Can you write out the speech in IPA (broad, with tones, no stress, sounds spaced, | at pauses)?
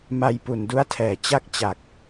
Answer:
m a˧ j p u˨˩ n d u˦˥ a̯ tʰ ɛː˨˩ t͡ɕ a˥˩ k̚ t͡ɕ a˨˩ k̚